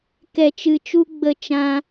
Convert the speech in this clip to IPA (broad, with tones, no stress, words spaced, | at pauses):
kɛ˨t͡ʃɨ˨t͡ʃu˧ ɡ͡bə˨ t͡ʃã˧